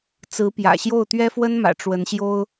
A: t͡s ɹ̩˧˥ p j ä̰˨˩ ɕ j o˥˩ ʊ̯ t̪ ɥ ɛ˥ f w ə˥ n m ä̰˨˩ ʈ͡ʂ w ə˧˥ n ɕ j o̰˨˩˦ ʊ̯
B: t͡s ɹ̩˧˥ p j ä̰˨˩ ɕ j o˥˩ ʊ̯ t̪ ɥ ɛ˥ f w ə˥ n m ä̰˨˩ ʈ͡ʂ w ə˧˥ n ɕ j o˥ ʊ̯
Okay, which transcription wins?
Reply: B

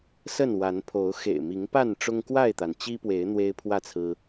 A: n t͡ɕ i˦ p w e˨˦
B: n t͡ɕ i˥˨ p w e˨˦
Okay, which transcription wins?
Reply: A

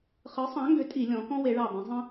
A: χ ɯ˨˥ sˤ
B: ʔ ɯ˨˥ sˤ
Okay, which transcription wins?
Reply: A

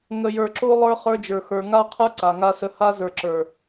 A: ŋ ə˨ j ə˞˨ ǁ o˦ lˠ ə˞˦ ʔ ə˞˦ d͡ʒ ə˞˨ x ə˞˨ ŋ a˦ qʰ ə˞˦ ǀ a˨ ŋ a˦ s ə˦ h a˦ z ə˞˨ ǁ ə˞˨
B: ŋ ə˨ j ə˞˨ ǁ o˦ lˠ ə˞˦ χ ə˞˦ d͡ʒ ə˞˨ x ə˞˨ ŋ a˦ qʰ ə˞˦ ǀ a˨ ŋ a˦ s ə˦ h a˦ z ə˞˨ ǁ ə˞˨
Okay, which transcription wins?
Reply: B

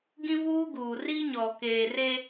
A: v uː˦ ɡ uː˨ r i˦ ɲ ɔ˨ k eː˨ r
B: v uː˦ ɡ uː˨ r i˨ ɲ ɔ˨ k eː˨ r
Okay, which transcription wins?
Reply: A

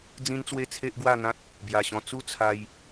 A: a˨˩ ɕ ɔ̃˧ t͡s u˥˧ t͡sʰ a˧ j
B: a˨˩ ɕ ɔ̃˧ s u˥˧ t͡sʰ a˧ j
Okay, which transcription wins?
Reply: A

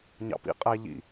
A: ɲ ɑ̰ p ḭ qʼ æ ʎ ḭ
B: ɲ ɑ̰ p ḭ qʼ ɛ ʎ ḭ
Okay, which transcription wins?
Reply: A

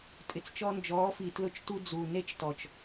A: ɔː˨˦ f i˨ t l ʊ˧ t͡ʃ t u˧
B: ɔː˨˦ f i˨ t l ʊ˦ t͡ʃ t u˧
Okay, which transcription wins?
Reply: A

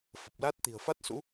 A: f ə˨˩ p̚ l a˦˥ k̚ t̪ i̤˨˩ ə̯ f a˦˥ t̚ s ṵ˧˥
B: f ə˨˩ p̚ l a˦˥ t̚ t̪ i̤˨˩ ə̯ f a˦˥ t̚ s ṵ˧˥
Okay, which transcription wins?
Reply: B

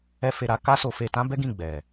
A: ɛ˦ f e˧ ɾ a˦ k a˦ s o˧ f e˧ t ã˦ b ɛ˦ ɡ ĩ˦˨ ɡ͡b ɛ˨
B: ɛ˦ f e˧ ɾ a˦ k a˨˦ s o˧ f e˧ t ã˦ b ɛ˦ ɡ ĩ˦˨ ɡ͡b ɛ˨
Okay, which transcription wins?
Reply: A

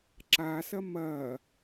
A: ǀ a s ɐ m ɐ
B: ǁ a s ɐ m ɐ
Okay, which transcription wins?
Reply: B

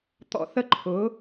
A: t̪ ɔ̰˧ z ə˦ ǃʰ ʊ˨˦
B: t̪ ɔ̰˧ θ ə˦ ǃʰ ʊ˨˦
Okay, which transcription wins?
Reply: B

